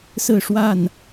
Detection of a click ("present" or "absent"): absent